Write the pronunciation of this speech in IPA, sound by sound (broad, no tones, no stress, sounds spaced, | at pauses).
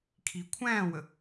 kʰ i kʷʰ æ̃ː w ə